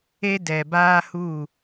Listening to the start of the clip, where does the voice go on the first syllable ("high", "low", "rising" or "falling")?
high